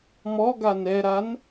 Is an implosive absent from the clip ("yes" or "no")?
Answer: yes